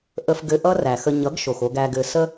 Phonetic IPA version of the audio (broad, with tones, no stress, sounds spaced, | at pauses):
ʔ ə˧ f ɡ ɘ˧ ʔ ʌ˦ r æ˨ x ə˧ ɲ ʌ˨˦ ɡ ʃ o˨ x o˧ ɡ æ˧ ɡ ɘ˧ s ə˦